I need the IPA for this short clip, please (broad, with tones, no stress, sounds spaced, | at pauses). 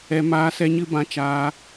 ɛ˧ m aː˧ s ɛ˧ ɲ ɨ˧ b ã˧ t͡ʃ aː˧